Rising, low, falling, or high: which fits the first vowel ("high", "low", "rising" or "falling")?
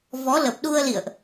rising